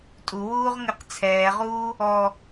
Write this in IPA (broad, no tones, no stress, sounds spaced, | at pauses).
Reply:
tʼ u w uː ʁ ŋ ɘ q t͡sʰ ɛː ʁ uː | ɔ